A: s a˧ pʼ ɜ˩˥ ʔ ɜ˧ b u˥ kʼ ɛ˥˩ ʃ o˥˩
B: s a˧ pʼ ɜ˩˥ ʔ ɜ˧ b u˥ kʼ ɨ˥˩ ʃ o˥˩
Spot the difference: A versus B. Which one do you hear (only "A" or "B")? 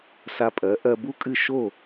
B